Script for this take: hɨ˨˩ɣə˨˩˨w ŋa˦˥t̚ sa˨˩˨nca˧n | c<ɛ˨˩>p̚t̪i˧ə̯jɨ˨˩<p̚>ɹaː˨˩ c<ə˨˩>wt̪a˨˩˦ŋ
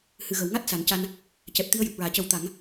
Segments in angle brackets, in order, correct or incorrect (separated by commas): correct, correct, incorrect